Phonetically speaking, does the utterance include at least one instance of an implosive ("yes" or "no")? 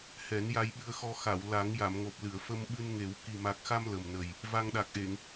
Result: yes